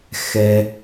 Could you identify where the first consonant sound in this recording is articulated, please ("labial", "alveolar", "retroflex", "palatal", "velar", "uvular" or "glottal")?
velar